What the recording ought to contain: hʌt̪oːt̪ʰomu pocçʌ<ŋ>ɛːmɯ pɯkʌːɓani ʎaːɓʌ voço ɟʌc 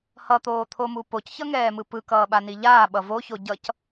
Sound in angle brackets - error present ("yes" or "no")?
no